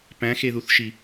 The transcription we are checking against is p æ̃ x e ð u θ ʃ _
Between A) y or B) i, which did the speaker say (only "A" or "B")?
B